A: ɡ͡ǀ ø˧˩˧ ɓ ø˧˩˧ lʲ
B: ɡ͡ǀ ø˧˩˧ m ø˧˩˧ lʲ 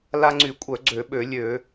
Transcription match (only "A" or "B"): A